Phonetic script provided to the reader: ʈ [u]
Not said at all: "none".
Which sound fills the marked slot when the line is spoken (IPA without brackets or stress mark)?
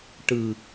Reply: ɯ